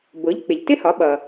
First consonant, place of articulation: labial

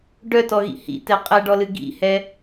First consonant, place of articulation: retroflex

